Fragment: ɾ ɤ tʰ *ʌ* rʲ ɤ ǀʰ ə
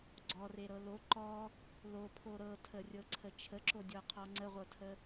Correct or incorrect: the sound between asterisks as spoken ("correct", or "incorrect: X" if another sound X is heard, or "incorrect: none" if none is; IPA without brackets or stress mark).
incorrect: ə